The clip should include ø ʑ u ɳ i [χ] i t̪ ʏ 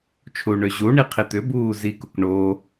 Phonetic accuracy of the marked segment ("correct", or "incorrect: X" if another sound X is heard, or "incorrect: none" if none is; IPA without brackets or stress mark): incorrect: qʰ